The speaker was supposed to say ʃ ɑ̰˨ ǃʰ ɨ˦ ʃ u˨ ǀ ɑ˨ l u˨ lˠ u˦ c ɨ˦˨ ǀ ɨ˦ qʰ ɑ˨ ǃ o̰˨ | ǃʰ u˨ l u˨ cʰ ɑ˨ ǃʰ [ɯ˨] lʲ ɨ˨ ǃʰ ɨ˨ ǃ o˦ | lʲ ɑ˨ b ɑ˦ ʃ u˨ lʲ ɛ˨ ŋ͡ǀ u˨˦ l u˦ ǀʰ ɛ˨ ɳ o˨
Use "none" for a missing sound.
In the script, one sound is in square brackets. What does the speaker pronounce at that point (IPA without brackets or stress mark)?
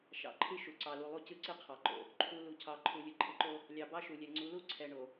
u˨